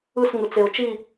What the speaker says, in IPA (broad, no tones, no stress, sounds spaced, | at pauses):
ɯ s ŋ ɯ t͡s e ʊ̯ t͡ʃ i